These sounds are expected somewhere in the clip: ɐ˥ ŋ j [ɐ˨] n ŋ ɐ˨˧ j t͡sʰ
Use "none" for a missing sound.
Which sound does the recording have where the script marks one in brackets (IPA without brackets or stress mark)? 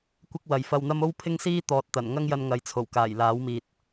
ɐ˧